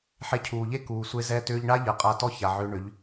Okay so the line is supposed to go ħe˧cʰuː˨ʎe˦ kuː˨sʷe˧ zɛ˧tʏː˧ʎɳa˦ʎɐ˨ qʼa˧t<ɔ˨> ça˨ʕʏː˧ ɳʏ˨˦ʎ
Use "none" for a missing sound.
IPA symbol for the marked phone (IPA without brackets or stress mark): ɔ˦˨